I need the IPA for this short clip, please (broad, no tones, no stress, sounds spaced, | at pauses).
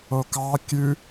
o k ɑ kʲ ʉ